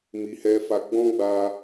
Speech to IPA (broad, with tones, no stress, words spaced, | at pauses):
mi˨hɛ˧fa˧ ɡ͡bɔ̃˦ɡ͡ba˧